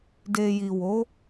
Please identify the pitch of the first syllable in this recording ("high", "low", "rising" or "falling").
low